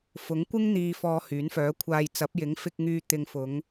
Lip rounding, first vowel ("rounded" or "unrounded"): rounded